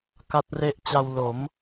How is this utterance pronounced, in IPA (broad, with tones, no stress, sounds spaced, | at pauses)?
k a˦˥ t̚ r e˦˥ ʔ t͡ɕ a˧ w l o˩˦ m